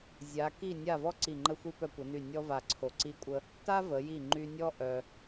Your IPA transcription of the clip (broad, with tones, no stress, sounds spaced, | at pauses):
zʲ a˩˧ k i˧˩ nʲ a˧˩ v ɔ˥ ǀ i˧˩ ŋ͡ǃ ə˧ xʷ i˧ p œ˧ kʷ ə˩˧ n y˧˩ nʲ ɔ˥ v a˧˩ ǀʰ o˧˩ ǀ i˧ kʷʼ ə˧ | t a˥ v ə˩˧ j i˧˩ ŋ͡ǃ y˧ nʲ ɔ˥ ʔ œ˧